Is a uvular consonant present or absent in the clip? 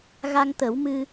absent